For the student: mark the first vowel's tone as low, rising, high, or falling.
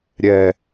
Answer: low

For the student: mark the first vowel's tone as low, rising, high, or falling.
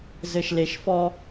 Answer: low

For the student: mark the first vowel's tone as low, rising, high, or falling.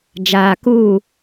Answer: low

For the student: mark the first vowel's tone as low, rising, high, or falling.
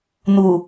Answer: low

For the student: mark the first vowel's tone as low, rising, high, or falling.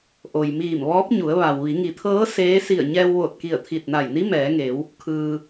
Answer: low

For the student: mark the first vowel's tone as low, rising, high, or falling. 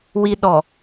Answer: low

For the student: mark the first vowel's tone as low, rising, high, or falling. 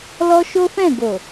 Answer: high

